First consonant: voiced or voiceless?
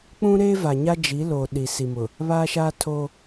voiceless